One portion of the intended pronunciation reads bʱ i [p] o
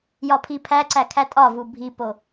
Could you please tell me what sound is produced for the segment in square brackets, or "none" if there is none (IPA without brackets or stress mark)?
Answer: p